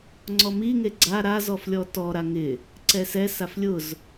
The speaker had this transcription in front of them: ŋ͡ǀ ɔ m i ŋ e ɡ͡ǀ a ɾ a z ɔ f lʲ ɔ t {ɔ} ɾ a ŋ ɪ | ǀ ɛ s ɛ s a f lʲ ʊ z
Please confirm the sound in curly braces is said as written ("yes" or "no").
yes